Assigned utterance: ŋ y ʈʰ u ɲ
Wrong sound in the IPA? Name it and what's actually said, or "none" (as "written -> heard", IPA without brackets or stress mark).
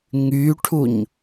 none